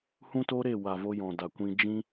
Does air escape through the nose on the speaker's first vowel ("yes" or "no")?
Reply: yes